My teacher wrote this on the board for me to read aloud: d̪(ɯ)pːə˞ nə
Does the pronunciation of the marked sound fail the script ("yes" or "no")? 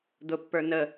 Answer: yes